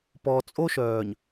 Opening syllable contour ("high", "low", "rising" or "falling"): low